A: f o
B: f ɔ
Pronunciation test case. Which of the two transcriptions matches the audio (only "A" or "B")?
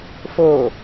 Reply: A